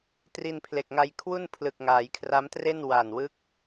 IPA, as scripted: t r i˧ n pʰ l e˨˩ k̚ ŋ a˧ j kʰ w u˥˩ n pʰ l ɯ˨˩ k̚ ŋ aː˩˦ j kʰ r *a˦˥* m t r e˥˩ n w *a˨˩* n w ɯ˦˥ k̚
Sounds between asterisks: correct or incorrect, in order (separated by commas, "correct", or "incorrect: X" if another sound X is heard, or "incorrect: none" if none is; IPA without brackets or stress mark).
correct, correct